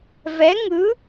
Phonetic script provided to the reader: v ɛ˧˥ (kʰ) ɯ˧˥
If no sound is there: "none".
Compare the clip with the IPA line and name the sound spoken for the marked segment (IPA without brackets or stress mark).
ŋ